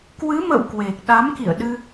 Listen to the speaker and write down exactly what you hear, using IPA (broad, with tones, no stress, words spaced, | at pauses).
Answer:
kwɨ˨˦mə̰˧˨w kwe˨˩k̚ɗa˨˦mkḭ˧˨ə̯ɗɨ˧